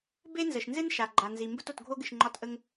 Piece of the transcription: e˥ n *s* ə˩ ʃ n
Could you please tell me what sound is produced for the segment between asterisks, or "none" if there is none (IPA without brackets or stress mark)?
z